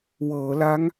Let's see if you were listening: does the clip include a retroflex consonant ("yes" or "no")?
no